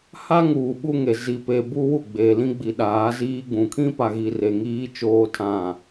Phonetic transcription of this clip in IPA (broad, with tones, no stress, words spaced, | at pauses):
ha˦ŋuː˨ ɓu˦ŋe˨ zi˨pe˨ bu˦wu˦˨ɡ͡be˨lĩ˦ ɡ͡bi˨ɗaː˨˦ziː˦ɡ͡bũ˨ kʰĩ˦pa˨ɣi˨ re˨ŋiː˦ t͡ʃoː˦tʰã˦˨